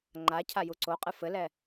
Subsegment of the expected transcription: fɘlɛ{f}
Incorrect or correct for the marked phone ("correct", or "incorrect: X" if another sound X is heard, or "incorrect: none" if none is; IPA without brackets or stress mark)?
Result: incorrect: none